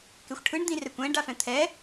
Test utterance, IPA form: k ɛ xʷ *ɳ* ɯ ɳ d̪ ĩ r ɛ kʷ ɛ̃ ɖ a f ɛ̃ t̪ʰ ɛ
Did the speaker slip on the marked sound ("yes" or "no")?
yes